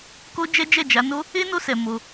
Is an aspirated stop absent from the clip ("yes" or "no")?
yes